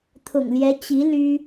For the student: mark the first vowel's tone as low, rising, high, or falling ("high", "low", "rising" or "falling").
low